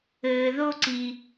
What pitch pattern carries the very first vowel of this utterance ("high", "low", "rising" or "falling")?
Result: low